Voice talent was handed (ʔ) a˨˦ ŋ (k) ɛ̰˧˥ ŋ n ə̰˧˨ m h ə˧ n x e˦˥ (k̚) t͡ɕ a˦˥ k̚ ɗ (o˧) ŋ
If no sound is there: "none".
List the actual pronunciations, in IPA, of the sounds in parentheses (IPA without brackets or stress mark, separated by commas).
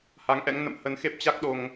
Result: h, ʔ, p̚, o˧